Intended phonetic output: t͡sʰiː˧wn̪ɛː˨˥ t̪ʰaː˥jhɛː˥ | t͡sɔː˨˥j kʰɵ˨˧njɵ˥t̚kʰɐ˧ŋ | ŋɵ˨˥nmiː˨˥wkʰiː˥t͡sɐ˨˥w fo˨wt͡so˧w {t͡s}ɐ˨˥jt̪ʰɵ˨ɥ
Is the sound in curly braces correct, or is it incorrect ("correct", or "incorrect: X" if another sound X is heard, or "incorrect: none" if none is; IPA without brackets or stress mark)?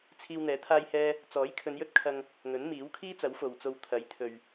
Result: incorrect: t̪ʰ